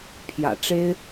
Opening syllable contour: low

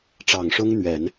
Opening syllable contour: low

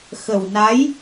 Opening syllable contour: low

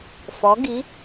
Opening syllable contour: rising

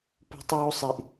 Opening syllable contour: high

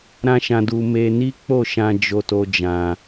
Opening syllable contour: high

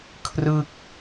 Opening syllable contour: falling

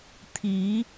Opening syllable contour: rising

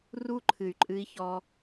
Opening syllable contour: high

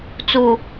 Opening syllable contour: low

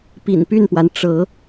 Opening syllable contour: low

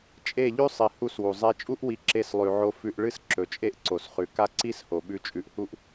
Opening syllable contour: falling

